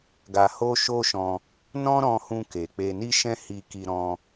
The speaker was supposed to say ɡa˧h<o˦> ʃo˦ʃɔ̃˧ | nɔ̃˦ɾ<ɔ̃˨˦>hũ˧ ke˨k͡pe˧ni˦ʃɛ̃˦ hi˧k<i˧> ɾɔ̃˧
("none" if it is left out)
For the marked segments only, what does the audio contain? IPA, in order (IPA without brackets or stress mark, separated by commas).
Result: o˦, ɔ̃˧, i˧